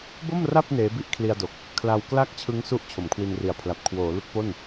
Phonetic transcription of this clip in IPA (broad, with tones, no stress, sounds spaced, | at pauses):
b o˥˩ m r a˥˩ p̚ n eː˦˥ b i˥˩ ʔ kʰ l i˧ a̯ d o˨˩ k̚ | kʰ l a˧ w k l a˥˩ k̚ t͡ɕʰ ɯ˦˥ ŋ s u˥˩ ʔ t͡ɕʰ o˩˦ m kʰ w i˧ n r i˨˩ a̯ pʰ l a˨˩ p̚ kʰ w oː˩˦ l u˦˥ k̚ p o˥˩ n